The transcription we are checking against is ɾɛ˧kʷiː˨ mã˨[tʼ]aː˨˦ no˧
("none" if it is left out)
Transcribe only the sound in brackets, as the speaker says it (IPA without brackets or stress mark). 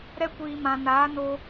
n